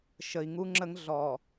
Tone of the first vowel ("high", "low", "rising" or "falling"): low